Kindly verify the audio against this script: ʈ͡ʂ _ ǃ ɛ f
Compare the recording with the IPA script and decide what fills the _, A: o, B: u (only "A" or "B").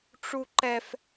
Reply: B